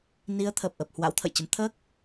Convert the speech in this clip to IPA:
n i˨˦ ə̯ t̪ʰ ə˨˩ p̚ ʔ ə˨˩ p̚ h w a̰˧˥ w t̪ʰ ə̰˧˨ j t͡ɕ ə˨˦ m t̪ʰ əː˦˥ k̚

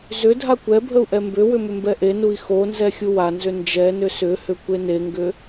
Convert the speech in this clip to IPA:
z ʏ dʱ a kʷ ɛ bʱ ə u̯ ʔ ɛ m b ʏ w ʏ m ʏ m b ɛ ʔ e n u i̯ x o n z ɛ xʲ u w a n z ʏ n d͡ʒ ɛ n ʏ s ʏ h ʏ kʷ e n e ŋ ɡ ʏ

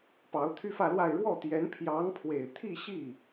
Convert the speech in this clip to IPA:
p ɑ˧˥ ʊ̯ t̪ʰ y˥ f ä˥˧ l w a˥˧ ɪ̯ ɻ w ɔ˥˩ t̪ j ɛ˧˥ n pʰ j ɑ˧˥ ŋ pʰ w e˨˩ ɪ̯ t̪ʰ i˥˧ ɕ i˥˩

